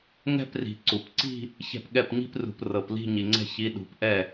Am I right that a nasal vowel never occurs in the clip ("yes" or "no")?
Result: yes